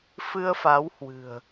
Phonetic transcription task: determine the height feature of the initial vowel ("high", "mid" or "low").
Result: high